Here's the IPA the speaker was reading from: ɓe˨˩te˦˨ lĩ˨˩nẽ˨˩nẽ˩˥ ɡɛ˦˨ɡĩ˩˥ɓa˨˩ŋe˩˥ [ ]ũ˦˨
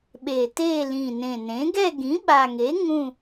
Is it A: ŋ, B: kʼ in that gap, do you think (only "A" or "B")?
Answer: A